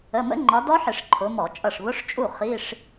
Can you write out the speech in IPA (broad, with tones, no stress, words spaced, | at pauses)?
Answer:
ə˩˧˩mə̰˦˥ŋ͡ǃɒ˨˦ dɔ˦˥ħɪ˧˩˧ʂ ǃʰʊ˨˦mɔ˧˩˧t͡ʃʼʌ˥˩ʂ βʊ˧˥˧ʂt͡ʃʼu˥˩ χi˧˥˧ʂ